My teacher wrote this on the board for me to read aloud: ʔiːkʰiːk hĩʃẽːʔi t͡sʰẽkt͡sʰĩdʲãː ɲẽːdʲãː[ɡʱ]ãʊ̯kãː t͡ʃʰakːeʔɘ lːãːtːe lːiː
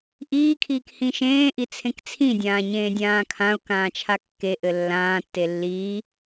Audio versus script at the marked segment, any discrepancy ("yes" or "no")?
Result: yes